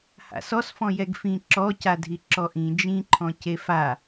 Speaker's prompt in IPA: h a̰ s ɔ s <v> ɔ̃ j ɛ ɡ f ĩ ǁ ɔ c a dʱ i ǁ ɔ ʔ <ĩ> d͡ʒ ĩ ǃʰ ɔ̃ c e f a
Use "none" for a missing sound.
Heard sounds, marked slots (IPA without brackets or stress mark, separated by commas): f, ĩ